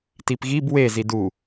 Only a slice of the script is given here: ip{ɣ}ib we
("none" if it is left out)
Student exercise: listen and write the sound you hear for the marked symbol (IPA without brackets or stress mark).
ɣ